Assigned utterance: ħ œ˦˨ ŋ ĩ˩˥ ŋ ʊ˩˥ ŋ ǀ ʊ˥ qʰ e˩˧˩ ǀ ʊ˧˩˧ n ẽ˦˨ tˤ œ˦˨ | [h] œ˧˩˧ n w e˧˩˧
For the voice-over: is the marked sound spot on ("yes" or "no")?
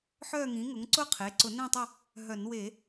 no